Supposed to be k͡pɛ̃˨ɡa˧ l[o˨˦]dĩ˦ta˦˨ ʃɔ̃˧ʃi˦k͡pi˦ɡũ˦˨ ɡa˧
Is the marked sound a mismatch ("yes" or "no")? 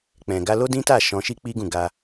yes